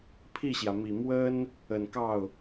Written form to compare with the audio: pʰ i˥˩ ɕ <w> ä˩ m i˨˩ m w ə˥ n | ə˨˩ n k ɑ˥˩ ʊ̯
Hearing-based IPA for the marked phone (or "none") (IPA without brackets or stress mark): j